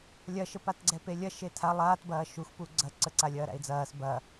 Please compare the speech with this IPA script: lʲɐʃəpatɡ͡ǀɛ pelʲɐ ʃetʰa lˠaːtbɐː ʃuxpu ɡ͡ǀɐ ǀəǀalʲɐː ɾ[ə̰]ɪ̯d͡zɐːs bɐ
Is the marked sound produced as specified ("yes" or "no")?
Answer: no